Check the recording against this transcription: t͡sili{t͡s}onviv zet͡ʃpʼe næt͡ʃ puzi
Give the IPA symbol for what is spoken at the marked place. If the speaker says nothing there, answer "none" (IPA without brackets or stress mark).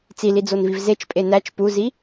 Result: d͡z